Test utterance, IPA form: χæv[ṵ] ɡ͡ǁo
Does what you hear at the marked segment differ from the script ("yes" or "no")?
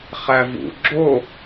no